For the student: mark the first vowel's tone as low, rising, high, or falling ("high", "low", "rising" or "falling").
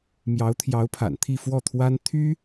rising